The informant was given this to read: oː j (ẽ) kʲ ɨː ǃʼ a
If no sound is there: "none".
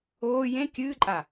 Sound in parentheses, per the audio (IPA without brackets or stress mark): ẽ